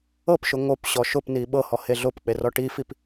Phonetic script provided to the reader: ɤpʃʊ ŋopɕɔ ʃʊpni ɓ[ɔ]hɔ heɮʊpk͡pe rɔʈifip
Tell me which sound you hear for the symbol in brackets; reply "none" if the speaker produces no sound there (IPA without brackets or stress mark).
ɤ